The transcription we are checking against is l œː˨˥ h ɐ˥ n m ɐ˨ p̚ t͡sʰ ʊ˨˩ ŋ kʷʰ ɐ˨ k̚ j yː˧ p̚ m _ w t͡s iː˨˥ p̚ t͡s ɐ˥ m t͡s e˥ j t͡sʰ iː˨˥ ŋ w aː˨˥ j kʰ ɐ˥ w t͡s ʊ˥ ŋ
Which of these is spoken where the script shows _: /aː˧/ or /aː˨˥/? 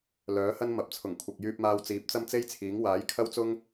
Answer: aː˧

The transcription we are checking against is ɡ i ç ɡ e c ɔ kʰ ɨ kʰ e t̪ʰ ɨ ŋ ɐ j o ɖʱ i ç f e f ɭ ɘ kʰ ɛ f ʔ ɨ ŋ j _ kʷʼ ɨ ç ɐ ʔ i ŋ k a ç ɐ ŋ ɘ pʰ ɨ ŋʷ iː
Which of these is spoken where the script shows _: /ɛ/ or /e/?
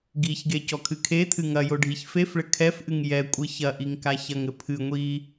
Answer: ɛ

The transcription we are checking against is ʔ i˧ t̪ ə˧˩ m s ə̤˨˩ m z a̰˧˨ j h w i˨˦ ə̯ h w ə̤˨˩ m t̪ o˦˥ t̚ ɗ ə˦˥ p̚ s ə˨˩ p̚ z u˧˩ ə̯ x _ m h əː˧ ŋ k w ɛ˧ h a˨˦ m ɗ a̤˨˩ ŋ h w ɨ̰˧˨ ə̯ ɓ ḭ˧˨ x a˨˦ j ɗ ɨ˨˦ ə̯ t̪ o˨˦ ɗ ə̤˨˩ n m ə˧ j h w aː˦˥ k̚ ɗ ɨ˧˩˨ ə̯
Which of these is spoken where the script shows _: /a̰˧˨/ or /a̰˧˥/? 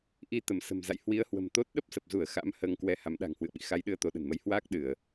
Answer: a̰˧˥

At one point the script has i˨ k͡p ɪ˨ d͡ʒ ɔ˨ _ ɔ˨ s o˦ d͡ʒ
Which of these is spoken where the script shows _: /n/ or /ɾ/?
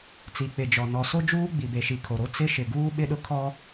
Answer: n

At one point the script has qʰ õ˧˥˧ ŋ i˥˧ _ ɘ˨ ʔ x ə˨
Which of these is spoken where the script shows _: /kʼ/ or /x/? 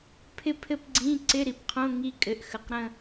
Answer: kʼ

